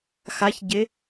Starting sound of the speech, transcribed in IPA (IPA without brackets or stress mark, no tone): x